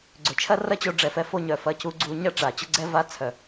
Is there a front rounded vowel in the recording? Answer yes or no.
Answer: yes